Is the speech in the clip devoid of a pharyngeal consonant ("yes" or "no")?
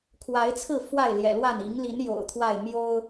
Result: yes